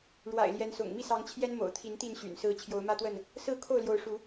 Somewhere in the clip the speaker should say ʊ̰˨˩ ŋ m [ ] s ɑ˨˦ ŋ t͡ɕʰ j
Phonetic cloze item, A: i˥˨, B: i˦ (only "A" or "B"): A